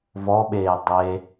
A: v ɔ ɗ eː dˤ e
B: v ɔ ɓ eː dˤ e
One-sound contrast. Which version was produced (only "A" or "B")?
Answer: B